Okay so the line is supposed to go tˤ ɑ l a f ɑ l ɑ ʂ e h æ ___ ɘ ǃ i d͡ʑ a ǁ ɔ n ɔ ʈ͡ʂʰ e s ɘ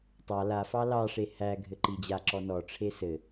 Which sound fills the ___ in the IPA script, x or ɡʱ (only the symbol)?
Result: ɡʱ